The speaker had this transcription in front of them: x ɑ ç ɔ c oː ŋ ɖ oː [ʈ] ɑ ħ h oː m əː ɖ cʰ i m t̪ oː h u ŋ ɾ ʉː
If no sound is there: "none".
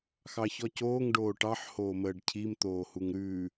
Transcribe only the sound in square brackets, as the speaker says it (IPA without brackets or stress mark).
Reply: ʈ